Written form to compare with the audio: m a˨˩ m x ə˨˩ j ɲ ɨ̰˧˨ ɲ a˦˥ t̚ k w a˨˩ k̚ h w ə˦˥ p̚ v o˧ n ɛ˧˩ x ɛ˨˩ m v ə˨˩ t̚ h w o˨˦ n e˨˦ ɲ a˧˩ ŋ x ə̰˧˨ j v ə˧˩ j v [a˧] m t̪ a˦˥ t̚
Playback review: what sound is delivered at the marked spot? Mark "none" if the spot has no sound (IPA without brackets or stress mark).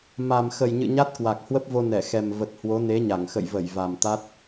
a˨˩